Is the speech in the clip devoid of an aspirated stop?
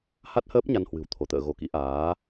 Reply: no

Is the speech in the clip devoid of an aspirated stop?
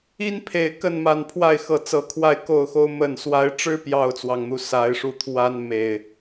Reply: no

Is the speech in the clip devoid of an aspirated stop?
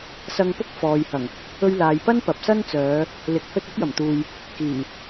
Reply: yes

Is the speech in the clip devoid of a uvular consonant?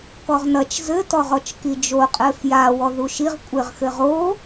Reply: no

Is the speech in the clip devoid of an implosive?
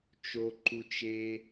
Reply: yes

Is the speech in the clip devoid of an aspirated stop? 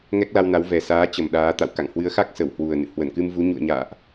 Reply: yes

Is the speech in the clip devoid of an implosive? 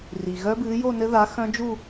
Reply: yes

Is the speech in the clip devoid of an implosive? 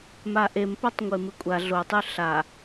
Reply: yes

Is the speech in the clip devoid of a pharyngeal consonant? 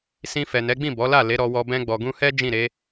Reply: yes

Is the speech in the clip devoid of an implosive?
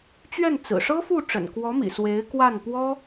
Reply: yes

